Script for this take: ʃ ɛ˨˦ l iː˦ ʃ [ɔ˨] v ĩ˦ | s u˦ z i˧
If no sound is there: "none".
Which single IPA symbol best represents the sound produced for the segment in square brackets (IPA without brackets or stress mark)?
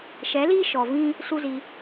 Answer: ɔ˨